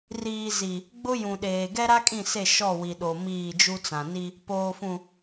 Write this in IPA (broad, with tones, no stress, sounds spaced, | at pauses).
r iː˨ z i˨ | ɡ͡b ʊ˦ j ũ˨ ɗ eː˨ ɡ ɛ˦ ɾ a˦ kʼ ĩ˦˨ s e˦˨ ʃ ɔ˦˨ w i˨ ɗ o˨ m iː˦˨ d͡ʒ u˦ t͡s ã˨ n i˦ | p oː˨ f ũ˨